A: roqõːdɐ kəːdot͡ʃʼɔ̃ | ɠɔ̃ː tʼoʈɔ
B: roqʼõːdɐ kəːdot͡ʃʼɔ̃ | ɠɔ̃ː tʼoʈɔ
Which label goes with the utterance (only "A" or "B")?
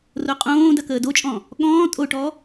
B